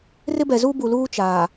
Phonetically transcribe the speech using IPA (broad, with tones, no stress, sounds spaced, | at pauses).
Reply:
r ɪ˦ b ɛ˨ z u˦ b u˨ l uː˦ t͡ʃ aː˨